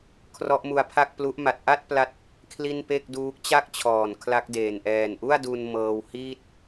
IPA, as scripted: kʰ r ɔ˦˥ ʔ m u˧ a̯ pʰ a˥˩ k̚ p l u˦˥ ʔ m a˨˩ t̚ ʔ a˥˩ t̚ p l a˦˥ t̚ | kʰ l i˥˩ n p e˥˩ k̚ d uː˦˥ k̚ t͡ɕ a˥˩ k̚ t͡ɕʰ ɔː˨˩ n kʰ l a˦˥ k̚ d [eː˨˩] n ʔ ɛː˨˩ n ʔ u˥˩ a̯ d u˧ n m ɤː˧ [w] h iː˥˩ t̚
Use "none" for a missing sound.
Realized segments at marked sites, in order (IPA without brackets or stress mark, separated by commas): eː˨˩, w